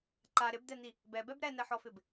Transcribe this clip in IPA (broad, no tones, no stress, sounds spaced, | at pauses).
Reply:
ǃ a ɾ ɪ b d̪ ɛ n̪ i | b ɛ b ɛ b ɾ ɛ n ɛ ħ ɔ f ɪ b